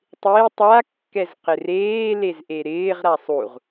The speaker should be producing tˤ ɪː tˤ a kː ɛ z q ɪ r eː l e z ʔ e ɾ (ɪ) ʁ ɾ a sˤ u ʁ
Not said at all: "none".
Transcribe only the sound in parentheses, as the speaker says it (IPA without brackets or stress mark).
ɪː